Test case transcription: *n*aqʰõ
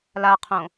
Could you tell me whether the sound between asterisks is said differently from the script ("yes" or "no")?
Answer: yes